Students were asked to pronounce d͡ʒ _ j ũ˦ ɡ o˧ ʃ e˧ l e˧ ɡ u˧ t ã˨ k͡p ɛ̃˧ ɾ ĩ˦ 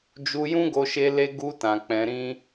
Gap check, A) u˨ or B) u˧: B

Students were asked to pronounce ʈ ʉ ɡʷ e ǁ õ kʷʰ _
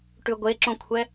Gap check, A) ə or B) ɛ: B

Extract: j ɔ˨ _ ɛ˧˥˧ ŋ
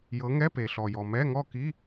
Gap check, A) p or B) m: B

